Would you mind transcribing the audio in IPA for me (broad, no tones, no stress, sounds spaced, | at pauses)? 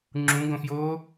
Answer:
ŋ͡ǁ ũ ɡ õ f j oː